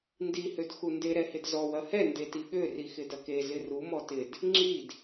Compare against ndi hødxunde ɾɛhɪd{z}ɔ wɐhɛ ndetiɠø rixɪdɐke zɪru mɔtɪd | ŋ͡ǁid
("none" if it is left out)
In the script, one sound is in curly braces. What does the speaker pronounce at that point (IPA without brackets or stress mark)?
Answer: z